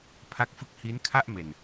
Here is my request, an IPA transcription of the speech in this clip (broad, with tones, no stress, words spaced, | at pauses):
pʰa˦˥k̚fɯ˦˥k̚ hi˦˥nkʰa˥˩ʔme˨˩n